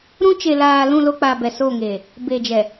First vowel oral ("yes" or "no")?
no